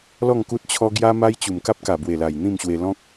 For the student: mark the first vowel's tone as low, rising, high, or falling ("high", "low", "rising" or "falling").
falling